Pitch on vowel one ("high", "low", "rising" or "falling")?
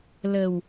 low